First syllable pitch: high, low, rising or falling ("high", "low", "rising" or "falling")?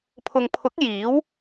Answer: low